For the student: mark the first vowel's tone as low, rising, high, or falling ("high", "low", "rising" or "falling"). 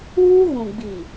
high